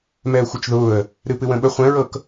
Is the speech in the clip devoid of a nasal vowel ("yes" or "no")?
no